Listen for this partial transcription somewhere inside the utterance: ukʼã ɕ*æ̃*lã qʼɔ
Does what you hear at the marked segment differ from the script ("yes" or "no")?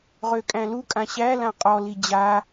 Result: yes